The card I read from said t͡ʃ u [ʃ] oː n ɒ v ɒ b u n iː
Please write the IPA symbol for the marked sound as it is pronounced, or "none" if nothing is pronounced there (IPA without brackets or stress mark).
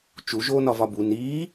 ʒ